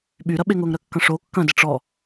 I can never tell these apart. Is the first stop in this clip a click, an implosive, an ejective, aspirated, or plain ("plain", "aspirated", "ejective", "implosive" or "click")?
implosive